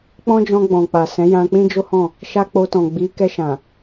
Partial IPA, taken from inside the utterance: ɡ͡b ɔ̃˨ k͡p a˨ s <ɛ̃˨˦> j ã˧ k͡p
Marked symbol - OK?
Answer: yes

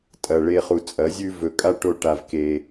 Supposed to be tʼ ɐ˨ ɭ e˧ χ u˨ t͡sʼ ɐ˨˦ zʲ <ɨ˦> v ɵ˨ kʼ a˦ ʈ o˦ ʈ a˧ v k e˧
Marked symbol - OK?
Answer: no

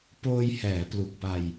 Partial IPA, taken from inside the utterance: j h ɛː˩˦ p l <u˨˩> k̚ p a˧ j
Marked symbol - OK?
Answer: yes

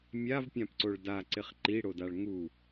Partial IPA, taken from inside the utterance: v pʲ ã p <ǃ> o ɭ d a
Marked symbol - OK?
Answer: no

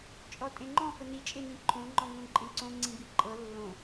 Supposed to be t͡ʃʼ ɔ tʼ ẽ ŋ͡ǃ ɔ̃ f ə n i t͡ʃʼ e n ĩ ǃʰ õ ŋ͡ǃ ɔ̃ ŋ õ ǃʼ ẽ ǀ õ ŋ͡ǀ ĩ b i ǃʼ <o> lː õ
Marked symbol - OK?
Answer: no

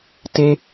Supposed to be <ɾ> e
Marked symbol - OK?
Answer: no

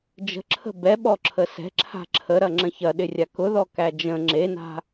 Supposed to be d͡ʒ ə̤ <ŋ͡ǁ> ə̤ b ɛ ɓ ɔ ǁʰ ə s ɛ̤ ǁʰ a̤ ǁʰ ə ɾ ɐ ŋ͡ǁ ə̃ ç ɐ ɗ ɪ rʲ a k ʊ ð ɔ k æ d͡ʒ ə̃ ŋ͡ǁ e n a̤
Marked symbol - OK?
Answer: no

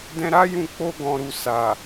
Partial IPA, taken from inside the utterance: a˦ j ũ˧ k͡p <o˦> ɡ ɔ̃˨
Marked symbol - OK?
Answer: no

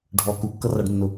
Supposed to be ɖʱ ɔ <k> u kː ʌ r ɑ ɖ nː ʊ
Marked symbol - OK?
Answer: yes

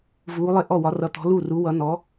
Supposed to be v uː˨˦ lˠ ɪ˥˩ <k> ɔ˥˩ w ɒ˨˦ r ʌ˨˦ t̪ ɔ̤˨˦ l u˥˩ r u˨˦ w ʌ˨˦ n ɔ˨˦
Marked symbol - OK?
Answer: no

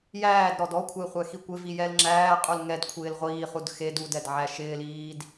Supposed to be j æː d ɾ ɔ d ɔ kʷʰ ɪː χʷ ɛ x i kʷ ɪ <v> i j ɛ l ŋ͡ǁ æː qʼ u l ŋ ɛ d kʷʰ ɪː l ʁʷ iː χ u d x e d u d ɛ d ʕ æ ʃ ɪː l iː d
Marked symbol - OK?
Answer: yes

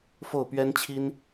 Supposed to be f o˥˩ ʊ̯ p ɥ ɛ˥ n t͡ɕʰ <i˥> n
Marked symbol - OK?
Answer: yes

